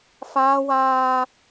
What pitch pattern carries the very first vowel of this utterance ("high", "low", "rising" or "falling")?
high